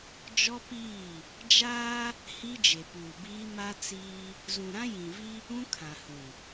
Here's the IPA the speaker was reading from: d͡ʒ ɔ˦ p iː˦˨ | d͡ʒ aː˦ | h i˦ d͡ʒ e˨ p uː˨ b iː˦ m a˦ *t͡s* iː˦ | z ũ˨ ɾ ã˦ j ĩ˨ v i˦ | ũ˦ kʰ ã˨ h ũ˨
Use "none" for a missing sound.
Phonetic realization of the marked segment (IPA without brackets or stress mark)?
t͡s